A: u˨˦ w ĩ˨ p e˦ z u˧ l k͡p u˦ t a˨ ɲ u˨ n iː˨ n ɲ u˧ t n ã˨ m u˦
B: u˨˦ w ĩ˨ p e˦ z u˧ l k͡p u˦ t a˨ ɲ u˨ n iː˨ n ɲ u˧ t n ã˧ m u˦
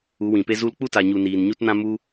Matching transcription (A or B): B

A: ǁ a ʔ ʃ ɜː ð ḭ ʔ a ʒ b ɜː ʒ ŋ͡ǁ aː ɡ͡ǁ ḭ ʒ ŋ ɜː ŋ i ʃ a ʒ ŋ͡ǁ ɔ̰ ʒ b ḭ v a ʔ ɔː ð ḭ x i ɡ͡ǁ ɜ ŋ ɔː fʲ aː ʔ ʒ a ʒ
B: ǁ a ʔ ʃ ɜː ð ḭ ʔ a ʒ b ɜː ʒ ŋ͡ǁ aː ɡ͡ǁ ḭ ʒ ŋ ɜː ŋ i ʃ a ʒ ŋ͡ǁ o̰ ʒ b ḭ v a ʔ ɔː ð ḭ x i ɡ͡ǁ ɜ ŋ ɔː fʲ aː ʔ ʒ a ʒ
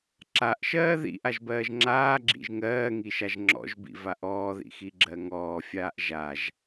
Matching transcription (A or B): A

